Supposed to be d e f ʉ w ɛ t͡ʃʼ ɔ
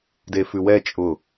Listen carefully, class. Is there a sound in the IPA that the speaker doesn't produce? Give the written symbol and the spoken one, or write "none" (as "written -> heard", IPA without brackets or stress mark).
ɔ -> ʊ